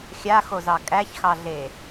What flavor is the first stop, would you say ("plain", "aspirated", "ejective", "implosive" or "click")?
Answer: ejective